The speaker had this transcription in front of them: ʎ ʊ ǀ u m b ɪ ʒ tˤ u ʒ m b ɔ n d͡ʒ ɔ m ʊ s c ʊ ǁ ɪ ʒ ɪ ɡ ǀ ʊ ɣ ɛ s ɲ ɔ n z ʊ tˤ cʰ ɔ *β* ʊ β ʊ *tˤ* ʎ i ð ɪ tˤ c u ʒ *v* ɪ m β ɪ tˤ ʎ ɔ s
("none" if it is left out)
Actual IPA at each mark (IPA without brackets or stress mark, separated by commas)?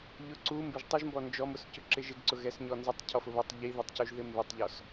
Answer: f, tˤ, ð